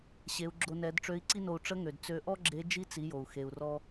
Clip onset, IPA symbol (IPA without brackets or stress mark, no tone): ɕ